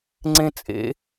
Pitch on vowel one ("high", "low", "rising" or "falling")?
high